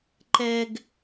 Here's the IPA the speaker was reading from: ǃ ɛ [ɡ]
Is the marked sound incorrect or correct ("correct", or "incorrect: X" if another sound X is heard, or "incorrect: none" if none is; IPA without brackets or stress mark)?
correct